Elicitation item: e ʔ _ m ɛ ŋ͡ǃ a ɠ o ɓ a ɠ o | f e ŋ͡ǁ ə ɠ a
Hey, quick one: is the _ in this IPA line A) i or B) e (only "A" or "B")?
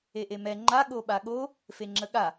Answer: B